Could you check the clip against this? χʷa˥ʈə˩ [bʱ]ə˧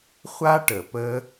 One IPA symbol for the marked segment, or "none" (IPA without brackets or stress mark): p